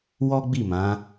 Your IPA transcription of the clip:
wɔ˦ɡ͡bi˦˨mã˨˦

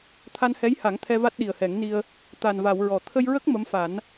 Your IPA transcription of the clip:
t̪ʰa˧nhɛ˧˥jha˨˩˦ŋ t̪ʰɛ˧va˦˥t̚ ɗi˨˩ə̯hɛ˨˩˦ŋni˧ə̯ | t̪a˨˩nva˨˩˨wɹɔ˨˩˨ t̪ʰə˧jɹə˦˥k̚ mə˧˥mfa˨˩˦n

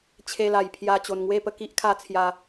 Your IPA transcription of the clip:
t͡ɕʰe˧la˨˩j pʰja˧ t͡ɕo˨˩nŋwe˥˧pə˧ ki˦ʔkʰa˧t͡sʰja˨˩

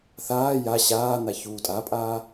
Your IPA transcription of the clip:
θaː ja ɕaːn̪a çuːtʼapʼaː

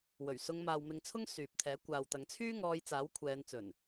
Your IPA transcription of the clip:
wɵ˨˩ɥsʊ˨˧ŋmaː˨wmɪ˨˧ŋ t͡sʰʊ˥ŋsyː˨p̚t̪ʰɛː˨˥ kʷaː˨wt̪ɐ˨˧ŋt͡sʰyː˥ ŋɔː˧jt͡saː˨˥wkʷʰɛː˨˧n t͡sɵ˨˩n

